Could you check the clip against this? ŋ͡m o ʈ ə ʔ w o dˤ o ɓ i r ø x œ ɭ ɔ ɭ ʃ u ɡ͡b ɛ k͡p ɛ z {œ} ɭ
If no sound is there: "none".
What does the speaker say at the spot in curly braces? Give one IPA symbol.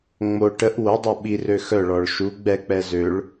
ø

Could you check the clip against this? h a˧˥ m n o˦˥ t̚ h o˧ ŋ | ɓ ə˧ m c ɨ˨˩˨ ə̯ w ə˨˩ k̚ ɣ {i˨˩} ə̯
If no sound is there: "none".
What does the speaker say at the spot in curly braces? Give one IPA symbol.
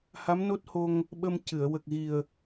i˨˩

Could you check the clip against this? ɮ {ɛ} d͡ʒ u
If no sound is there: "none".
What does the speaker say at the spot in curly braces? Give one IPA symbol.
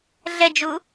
ɛ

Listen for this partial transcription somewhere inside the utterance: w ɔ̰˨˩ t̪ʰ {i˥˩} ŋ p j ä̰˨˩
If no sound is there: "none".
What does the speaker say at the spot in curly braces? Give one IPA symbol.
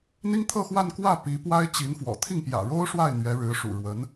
i˥˩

